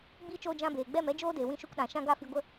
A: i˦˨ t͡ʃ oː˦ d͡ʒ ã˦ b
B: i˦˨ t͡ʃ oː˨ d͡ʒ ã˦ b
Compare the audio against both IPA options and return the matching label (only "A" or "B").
A